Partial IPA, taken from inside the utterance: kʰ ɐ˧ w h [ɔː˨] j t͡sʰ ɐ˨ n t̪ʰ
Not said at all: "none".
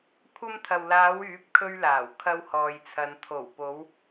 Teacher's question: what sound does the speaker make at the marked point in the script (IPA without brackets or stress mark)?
ɔː˨